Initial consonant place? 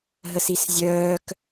glottal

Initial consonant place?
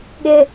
velar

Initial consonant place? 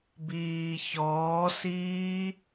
labial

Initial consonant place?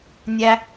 alveolar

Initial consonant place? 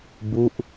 labial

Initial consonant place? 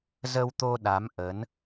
alveolar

